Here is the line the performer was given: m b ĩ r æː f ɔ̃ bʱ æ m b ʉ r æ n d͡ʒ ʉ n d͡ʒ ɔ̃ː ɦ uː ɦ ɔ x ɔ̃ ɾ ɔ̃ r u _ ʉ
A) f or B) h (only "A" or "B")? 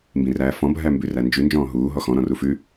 A